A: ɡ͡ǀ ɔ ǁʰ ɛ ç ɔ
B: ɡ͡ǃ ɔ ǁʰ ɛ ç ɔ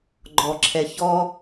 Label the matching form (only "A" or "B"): B